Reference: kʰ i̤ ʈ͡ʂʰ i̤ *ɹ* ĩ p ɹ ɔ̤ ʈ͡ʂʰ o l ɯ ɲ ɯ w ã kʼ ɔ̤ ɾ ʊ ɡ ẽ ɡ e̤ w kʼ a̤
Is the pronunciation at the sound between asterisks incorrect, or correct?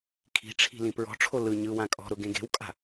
incorrect